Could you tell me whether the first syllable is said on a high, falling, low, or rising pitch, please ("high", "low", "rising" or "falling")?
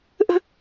high